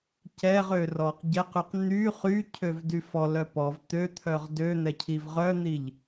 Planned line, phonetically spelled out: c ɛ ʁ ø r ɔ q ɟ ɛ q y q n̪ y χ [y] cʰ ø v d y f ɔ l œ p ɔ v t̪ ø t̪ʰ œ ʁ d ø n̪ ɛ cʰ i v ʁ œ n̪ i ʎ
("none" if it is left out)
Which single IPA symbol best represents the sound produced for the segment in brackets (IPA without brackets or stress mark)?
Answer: y